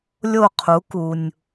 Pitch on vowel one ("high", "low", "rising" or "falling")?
falling